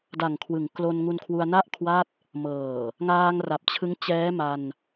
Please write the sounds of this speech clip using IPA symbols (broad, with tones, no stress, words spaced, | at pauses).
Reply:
da˨˩ŋkʰwɯ˩˦ŋklo˧n ŋu˧nkʰwu˧a̯na˥˩ʔkʰwa˥˩t̚ | mɤː˨˩ | ŋaː˧ŋra˨˩p̚t͡ɕʰɯ˦˥ŋ t͡ɕɛː˦˥ma˧n